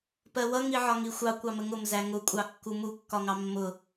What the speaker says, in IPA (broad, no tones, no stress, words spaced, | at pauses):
pɜwʌ ŋiʕɒŋixʷɑ kʷɑməŋʊm zæŋʊ kʷʼɑkːumu kːɒŋɑmːʊ